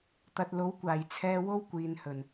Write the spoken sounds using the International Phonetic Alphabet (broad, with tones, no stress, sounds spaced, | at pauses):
t̪ ɐ˨ t̚ l o˨˥ w kʷ aː˨˩ j t͡sʰ ɛː˧ w o˥ w kʷ iː˨ n h ɵ˨˩ n